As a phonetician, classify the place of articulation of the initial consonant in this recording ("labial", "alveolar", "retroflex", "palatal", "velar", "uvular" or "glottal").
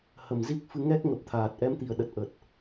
glottal